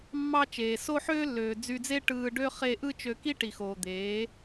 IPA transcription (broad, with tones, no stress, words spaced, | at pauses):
mːɑ˦ t͡ʃeː˨so˦ħøː˦lːøː˨ d͡zy˧d͡ze˦ ʈɯː˧ɖø˦ χe˧ ʔɯ˦t͡ʃø˧ki˦ ʈi˨xoː˨d̪eː˨˦